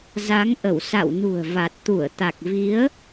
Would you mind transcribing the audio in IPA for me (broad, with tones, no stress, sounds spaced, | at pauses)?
z a˨˦ ŋ ʔ ə˧˩ w s a̰˧˨ w n ṳ˨˩ ə̯ v a˨˩ t̚ t̪ u˧˩ ə̯ t̪ a˨˩ k̚ v i˨˦ ə̯